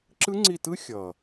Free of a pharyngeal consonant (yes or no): yes